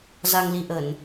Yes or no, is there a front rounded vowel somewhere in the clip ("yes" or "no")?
no